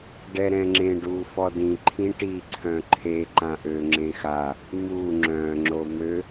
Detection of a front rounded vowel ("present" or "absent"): present